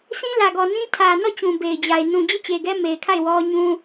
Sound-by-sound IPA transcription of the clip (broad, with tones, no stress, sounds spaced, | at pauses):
sʰ ĩ˦ l ä˨ ɡ ɔ˨ n ĩ˦ tʰ ä˨ n ɔ˦˨ t͡ɕ ũ˨ b e˨ ɪ̯ d͡ʑ a˨ ɪ̯ n ũ˨ d͡ʑ e˦˨ t͡ɕ e˨ ɡ ɛ˦ m e˨ ɪ̯ kʰ a˦˨ ɪ̯ w ɔ˦ ɲ ũ˦